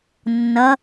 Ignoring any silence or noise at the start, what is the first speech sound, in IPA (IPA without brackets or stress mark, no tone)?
nː